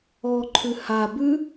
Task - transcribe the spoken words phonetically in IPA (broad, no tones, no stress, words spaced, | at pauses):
ɔǃʰʉ ha bʉ